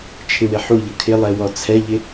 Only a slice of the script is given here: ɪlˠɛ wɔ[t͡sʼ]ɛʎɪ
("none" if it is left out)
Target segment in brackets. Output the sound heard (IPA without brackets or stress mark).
t͡sʰ